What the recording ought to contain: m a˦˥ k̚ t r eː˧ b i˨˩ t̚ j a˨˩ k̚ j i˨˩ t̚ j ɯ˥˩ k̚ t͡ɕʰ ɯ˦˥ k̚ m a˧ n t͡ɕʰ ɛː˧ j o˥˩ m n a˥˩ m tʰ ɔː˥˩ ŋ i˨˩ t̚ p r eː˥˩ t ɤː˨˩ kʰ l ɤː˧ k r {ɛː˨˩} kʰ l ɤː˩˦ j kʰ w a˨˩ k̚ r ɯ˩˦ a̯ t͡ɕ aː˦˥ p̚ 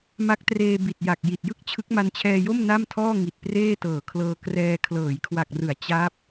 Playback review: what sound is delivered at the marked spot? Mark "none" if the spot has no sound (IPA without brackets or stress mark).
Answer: ɛː˧